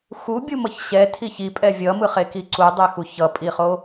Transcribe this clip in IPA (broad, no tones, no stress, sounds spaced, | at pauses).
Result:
x u bʲ u m ʌ ç ɕ ɛ tʰ i ç i pʼ ɛ vʲ ʌ m ɯ χ e k i ǀ u dˤ ɛ x u ç ʌ pʼ i χ o